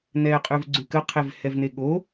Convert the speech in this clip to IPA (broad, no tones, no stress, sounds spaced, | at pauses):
n ɛː qʼ ʉ v ɡ͡ǀ ʉ k ə qʰ e v h ɛ v n e ɠ o